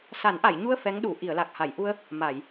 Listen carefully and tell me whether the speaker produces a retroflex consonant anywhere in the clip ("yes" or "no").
no